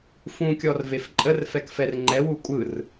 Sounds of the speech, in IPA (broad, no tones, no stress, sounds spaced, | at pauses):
f ũ kʲ ɔ r v e f ǃʼ ə r f ɛ k f ɛ r ŋ͡ǃ ɛ w u kʷʼ ɯ r